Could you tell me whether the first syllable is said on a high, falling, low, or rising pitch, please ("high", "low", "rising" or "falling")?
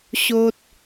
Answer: high